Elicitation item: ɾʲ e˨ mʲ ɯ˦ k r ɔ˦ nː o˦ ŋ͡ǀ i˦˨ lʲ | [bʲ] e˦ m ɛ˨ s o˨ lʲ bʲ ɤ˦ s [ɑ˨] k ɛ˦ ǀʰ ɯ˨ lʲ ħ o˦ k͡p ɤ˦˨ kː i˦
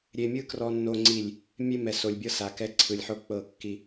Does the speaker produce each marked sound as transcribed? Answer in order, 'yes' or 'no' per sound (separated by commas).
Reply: no, no